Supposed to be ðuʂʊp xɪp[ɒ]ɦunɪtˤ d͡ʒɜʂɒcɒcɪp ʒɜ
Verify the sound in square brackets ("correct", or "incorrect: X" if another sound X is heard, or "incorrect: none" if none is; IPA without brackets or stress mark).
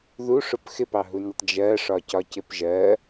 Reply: incorrect: ɑ